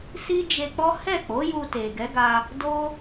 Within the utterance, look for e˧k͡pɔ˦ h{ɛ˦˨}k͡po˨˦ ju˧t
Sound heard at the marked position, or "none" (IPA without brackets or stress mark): ɛ˦˨